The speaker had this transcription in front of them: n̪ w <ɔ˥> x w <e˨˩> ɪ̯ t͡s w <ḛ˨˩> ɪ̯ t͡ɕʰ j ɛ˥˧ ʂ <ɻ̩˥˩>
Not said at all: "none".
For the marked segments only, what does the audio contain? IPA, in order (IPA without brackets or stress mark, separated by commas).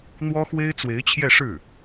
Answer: ɔ˥, e˥, e˧˥, ɻ̩˥˩